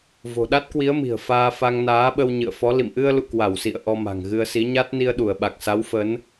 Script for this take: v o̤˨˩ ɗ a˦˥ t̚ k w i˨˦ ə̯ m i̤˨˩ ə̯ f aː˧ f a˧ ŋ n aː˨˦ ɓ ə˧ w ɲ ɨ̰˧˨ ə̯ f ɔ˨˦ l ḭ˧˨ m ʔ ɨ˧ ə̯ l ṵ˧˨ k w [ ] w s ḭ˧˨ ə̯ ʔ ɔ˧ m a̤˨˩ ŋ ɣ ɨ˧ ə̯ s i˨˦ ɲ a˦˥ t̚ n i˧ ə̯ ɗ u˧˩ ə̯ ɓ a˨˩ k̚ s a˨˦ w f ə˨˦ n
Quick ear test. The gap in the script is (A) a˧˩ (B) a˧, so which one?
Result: A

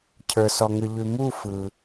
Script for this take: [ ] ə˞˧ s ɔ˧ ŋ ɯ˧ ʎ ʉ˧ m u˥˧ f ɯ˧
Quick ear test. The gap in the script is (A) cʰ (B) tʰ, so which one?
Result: A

